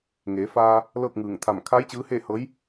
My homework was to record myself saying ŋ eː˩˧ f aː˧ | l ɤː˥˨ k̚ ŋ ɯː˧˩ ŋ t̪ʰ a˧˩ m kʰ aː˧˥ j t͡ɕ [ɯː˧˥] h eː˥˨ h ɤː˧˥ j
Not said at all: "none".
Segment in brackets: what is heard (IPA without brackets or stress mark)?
ɯː˧˥